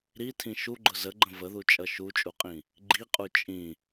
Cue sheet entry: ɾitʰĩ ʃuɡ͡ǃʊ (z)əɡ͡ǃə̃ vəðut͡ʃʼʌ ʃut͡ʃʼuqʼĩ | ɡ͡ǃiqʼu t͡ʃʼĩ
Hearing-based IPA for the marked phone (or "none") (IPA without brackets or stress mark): z